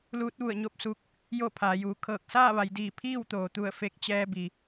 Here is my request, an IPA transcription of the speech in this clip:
l uː˧˥ t̚ ʋ u˧˩ ə̯ ɲ o˥˨ p̚ s uː˧ k̚ | j o˥˨ pʰ aː˩˧ j uː˩˧ kʰ ɤː˧˩ k̚ s aː˥˨ ʋ a˩˧ j d iː˧˩ pʰ iː˥˨ w t̪ oː˩ t̪ u˧˩ ə̯ f e˧ k̚ t͡ɕ ɛː˧ b i˩

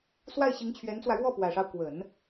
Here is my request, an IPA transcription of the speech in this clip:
s w a˥˩ ɪ̯ ɕ i˧˥ ŋ t͡ɕʰ ɥ ɛ˧˥ n t͡s w ä˧ ɻ w ɔ˥˩ p w ä˨˩ ʂ ɑ˦ ʊ̯ k w ə˨˩˦ n

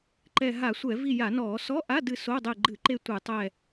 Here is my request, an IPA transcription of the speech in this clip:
ǃ ɛ˦˨ ɦ a˧˩˧ sʷ ɛ˧˩˧ v i˦˨ j a˧˩˧ n ɔː˧˩˧ s ɔ˧˥˧ ʔ a˧˥˧ d ɨ˦˨ s o˧˥˧ dˤ e˦˨ ɡ͡ǃ ɨ˧˩˧ ǃ e˦˨ tʷ ɨ˧˩˧ tˤ ɛ˦˨

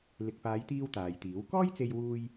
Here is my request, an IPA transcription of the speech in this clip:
l ɪ˨ k̚ p aː˨˧ j t̪ iː˧ w t̪ aː˨ j t̪ iː˨˥ w k ɔː˥ j t͡s e˧ j w uː˧ j

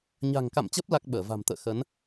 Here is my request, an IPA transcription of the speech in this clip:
ɲ a̤˨˩ ŋ k a̰˧˨ m t͡ɕ ə˦˥ p̚ l a˦˥ k̚ ɓ əː˧˩ v a̤˨˩ m t̪ ə̰ː˧˨ x ə˨˦ n

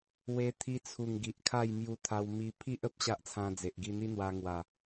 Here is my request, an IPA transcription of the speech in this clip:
w e˧ t̪ʰ i˧ t͡sʰ u˨˩ ŋ ɡ i˨ ʔ kʰ a˥˧ j m j u˧ t̪ʰ a˧ w m i˧ pʰ i˦ ʔ ə˦ p̚ ɕ a˦ ʔ t͡sʰ ã˧ d͡z e˨ ʔ ɡ i˧ n̪ i˦ n̪ w a˧ ŋ w a˨˩

